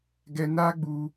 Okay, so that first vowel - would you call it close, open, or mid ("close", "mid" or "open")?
mid